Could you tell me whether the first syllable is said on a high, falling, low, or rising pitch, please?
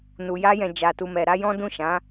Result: low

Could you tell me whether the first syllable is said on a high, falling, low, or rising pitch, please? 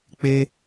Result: high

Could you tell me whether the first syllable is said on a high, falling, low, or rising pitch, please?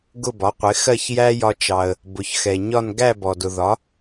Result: falling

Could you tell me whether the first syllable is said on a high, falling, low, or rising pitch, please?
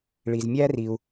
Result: low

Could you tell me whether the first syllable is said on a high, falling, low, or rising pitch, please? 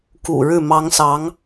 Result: low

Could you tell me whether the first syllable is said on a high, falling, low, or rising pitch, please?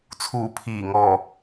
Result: low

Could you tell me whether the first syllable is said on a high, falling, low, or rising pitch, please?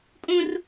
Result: high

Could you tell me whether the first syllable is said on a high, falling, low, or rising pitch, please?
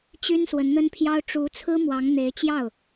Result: high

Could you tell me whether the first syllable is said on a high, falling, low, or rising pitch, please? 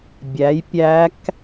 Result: rising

